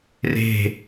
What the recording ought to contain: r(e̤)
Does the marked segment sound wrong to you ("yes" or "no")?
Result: no